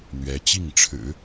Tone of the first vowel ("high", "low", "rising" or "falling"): rising